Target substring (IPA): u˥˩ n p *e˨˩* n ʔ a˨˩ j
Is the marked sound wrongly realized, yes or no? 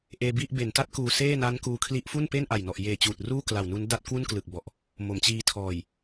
yes